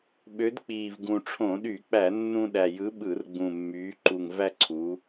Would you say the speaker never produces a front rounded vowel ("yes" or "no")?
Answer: no